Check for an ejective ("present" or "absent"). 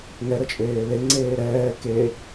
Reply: present